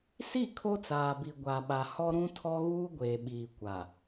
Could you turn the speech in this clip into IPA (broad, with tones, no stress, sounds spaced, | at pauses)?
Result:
s i˦˨ kʰ o˦ t͡s aː˨ b i˨ ɡʷ a˨ ɓ a˨ h ɔ˦ ɾ ũ˦ tʰ ɔ˦ ɣ uː˦ ɡʷ eː˨ ɓ iː˨ kʷ a˨